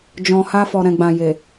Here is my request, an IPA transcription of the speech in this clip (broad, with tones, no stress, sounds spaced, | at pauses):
d͡ʒ ɔ̃˨ h a˧ f ɔ˨ ɾ ɛ̃˨ ɡ͡b ã˨ j e˨